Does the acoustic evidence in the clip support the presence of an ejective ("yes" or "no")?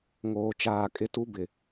yes